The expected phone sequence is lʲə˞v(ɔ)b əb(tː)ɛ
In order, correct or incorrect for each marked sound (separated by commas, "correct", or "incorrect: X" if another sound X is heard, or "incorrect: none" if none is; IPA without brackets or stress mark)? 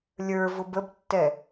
incorrect: ʊ, correct